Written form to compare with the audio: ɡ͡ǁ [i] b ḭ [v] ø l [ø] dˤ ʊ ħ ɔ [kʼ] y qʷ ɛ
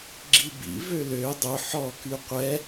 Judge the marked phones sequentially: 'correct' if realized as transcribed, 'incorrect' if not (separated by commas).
correct, correct, correct, incorrect